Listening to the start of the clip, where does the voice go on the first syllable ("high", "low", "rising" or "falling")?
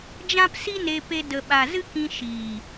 high